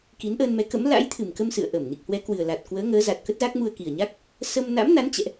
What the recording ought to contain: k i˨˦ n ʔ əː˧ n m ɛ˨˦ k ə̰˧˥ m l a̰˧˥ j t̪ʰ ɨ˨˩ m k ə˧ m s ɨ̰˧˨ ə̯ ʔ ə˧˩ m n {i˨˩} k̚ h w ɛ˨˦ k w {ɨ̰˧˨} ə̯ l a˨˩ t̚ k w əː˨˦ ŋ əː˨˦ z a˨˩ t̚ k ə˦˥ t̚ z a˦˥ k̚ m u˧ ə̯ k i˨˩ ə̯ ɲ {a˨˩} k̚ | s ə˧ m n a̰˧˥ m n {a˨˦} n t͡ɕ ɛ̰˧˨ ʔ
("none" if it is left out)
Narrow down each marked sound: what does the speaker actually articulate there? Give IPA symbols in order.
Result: i˨˩, ɨ˨˩, a˦˥, a˨˦

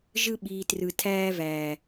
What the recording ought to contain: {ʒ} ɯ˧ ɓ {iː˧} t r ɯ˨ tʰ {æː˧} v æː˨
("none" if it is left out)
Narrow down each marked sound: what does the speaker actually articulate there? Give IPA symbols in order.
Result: ʒ, iː˨, æː˧

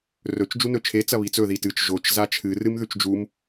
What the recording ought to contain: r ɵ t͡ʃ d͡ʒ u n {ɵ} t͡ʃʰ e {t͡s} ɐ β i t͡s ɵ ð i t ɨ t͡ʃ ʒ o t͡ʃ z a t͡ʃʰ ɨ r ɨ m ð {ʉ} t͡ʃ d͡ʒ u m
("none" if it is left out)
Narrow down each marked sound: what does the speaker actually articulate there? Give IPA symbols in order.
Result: ɵ, t͡s, ʉ

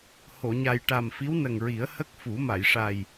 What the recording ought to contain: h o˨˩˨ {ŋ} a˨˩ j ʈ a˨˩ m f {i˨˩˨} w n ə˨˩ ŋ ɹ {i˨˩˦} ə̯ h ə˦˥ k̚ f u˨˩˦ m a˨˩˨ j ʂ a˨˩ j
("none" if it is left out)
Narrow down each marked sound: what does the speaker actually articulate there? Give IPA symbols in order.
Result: ɲ, i˧˥, i˨˩˦

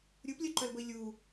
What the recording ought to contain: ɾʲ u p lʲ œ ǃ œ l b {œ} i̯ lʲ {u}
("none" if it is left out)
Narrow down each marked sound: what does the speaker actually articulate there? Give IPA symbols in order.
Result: ə, u

